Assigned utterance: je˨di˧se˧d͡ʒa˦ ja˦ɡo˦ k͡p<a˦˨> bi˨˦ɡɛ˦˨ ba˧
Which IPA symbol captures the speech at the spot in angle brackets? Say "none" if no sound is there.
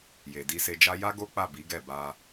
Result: a˦˨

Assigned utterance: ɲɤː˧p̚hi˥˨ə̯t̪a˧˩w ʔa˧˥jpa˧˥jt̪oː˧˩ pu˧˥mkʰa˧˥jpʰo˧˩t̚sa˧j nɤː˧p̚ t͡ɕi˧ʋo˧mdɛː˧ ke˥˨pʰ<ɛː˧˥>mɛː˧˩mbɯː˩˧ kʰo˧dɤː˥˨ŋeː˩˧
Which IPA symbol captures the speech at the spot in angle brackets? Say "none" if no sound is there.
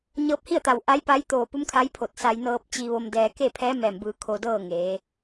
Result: ɛː˧˥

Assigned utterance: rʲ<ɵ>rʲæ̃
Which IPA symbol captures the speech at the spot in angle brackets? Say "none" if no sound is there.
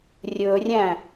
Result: ɵ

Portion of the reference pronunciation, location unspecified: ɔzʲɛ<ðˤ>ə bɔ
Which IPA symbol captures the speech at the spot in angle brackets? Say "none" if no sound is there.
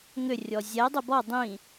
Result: dˤ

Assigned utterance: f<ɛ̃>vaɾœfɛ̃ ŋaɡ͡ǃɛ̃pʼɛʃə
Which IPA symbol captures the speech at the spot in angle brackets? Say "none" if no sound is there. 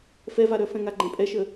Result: ɛ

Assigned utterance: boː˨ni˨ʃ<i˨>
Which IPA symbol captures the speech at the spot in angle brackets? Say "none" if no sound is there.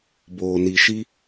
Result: i˦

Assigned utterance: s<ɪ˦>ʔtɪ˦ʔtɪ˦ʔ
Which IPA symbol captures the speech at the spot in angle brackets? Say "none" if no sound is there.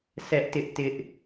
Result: ɛ˦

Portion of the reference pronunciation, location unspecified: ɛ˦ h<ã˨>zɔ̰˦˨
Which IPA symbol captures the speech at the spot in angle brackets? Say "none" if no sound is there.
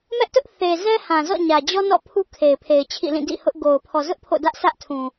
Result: ã˨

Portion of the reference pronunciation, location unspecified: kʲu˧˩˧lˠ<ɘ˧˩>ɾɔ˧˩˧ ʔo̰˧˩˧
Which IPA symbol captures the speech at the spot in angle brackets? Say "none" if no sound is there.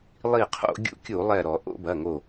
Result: ɛ˧˩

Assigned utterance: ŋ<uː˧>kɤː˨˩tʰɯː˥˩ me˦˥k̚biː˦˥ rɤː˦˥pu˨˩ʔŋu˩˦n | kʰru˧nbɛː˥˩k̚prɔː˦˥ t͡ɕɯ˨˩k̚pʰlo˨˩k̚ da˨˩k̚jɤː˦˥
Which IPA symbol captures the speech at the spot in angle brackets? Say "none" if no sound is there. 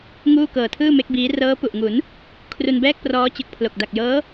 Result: uː˥˩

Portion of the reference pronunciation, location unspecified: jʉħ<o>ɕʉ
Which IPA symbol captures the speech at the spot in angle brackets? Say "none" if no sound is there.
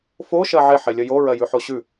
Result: o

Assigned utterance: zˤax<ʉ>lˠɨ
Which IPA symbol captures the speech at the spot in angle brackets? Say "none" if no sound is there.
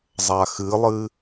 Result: ɨ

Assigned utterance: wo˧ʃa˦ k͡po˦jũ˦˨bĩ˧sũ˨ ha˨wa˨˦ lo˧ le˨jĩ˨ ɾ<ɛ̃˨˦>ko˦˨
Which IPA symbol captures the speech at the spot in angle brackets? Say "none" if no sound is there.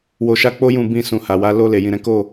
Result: ɛ̃˨˦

